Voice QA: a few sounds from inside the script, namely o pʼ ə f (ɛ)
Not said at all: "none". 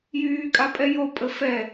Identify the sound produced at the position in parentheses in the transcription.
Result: ɛ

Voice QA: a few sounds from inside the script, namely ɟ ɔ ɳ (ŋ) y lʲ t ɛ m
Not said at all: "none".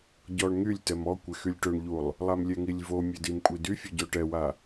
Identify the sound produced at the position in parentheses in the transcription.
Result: ŋ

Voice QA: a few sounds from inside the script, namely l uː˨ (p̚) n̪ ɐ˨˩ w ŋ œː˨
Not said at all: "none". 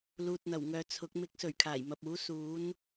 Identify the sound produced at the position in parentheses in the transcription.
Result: t̚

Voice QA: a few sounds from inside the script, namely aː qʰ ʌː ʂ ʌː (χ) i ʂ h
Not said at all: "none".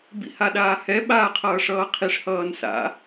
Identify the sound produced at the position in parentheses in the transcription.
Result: qʰ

